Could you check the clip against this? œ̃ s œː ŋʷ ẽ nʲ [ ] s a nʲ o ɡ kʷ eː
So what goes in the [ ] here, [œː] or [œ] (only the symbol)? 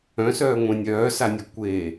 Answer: œː